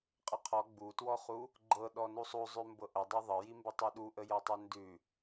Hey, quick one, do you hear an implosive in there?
yes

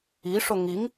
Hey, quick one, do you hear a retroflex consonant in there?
yes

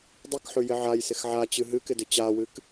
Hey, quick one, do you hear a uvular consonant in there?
no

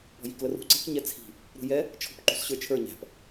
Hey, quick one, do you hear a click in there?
yes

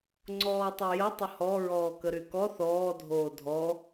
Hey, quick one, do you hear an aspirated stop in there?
no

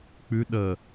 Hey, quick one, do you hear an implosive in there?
yes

